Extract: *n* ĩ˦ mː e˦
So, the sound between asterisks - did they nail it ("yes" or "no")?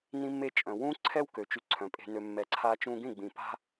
yes